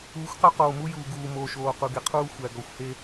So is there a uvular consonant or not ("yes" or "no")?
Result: yes